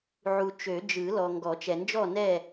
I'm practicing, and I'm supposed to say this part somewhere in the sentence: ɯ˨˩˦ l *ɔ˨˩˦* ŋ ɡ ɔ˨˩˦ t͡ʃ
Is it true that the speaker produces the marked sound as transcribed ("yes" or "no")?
no